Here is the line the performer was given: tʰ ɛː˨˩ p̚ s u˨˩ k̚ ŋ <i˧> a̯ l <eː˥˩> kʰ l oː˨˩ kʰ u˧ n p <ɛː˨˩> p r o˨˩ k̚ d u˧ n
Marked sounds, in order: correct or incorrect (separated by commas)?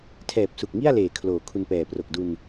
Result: incorrect, incorrect, correct